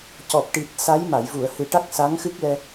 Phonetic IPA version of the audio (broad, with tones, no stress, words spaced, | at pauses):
cɔ˨˩p̚ ʈi˨˩t̚sa˧˥j ma˨˩˨jvu˨˩˨ə̯hɨ˨˩ʈa˦˥k̚ sa˧˥ŋxɨ˦˥k̚lɛ˧